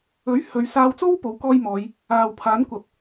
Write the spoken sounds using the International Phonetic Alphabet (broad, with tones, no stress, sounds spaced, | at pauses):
ɵ˨˥ ɥ h ɵ˨˧ ɥ s aː˧ w t͡s o˥ w p o˨˥ w k ɔː˥ j m ɔː˨˧ j | aː˨ w pʰ aː˨˥ n kʷ ɐ˨ p̚